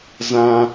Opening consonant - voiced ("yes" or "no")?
yes